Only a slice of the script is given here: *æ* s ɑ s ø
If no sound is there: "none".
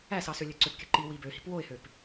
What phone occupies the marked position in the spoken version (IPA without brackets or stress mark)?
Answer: æ